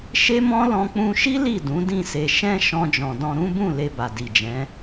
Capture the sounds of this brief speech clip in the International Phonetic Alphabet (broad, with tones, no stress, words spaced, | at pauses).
ʃe˦mɔ̃˦ lɔ̃˧k͡pũ˧ʃi˦ li˦˨dũ˨˦ dĩ˦˨se˧ ʃɛ̃˦ ʃɔ̃˧d͡ʒɔ̃˨dɔ̃˧ ɾũ˦bũ˦˨ le˧ba˨di˨d͡ʒɛ̃˨˦